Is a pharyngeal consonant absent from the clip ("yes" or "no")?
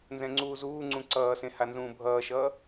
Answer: yes